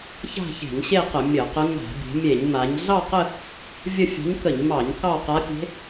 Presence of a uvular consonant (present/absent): present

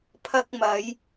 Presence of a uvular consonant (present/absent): absent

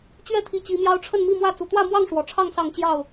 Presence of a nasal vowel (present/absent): absent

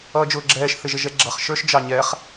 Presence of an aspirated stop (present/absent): absent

